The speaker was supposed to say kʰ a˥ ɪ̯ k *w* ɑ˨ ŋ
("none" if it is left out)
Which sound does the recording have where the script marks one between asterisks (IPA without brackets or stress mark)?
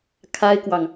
w